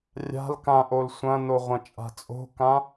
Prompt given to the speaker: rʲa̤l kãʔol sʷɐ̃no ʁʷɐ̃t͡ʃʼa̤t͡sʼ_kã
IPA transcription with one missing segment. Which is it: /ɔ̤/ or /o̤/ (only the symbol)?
o̤